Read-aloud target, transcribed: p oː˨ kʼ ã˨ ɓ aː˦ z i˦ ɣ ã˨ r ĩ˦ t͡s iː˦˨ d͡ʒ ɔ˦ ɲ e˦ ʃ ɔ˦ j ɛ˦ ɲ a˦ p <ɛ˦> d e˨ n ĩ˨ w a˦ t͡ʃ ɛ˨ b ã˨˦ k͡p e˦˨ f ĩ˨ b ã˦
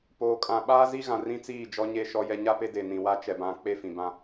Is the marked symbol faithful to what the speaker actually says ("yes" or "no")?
no